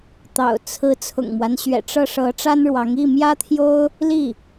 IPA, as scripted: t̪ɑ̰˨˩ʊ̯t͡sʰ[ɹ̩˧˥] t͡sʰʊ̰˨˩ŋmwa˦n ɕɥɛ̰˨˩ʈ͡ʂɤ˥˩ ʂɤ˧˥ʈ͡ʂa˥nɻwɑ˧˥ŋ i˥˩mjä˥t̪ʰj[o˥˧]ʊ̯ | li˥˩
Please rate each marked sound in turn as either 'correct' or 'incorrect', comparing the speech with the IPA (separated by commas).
correct, incorrect